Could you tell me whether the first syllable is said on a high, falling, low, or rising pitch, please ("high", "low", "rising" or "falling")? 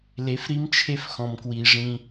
rising